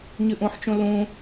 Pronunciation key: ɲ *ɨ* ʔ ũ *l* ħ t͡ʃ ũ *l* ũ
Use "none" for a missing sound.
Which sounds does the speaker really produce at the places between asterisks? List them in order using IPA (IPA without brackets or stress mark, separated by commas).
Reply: ɨ, none, l